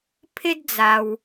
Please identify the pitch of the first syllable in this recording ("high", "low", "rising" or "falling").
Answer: high